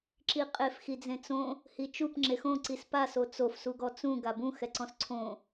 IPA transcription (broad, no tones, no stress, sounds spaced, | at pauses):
ǁ i qʼ e f x i d͡z ẽ t͡s õ | h i t͡ʃ u p ŋ͡ǁ e x õ ǀ i s p a s o t͡s o f s u ɡ ɔ t͡s ũ ɡ a b ũ x ɛ ǀ ɔ̃ s ǀʰ õ